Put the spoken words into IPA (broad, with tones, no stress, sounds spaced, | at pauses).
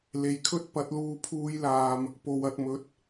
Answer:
l e˨ j kʰ ɵ˥ t̚ p ɐ˨˥ t̚ l uː˧ pʰ uː˧ j l aː˨ m | p o˨ w ɐ˨ t̚ m ɵ˨˥ t̚